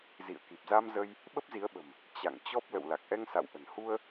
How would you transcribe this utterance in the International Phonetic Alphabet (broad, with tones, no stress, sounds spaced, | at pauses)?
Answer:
z ḭ˧˨ ə̯ k i˨˩ p̚ z a˧ m z ə˧ j | ɓ ə˦˥ p̚ z i˨˦ ə̯ ɓ ə̤˨˩ m | t͡ɕ a̰˧˨ ŋ t͡ɕ ɔ˦˥ p̚ l ə̰˧˨ w l a˨˩ k̚ ʔ ɛ˧ ŋ s a̰˧˨ w ʔ ə̤˨˩ n h u˧ ə̯